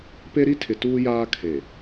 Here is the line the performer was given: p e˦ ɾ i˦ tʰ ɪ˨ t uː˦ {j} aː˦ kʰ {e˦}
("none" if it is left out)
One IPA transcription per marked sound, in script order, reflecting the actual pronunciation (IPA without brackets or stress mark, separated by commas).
j, e˨